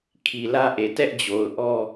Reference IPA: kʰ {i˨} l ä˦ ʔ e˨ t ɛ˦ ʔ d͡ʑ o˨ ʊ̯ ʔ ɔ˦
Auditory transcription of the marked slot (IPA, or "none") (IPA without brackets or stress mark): i˨